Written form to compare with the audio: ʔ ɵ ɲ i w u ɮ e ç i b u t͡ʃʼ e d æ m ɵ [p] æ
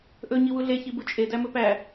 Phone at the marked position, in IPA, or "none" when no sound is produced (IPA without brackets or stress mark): p